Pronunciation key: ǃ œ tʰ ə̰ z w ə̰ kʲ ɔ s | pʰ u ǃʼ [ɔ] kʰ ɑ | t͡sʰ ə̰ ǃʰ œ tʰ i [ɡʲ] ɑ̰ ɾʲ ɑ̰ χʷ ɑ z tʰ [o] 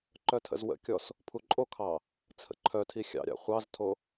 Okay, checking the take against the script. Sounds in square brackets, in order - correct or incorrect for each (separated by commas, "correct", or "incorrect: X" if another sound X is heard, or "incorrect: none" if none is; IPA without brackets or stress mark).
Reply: incorrect: o, incorrect: xʲ, correct